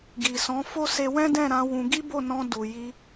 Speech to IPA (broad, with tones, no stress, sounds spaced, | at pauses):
ɡ i˨ s ɔ̃˨˦ f o˦ s e˧ w ɛ̃˦ d ɛ̃˦˨ ɾ ã˧ w ũ˧ ɡ i˦ b o˦˨ n ɔ̃˧ d u˨ j i˧